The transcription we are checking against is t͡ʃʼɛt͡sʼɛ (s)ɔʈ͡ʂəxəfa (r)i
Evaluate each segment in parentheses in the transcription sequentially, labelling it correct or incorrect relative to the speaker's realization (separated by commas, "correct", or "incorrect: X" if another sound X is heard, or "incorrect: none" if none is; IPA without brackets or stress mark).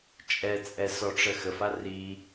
correct, correct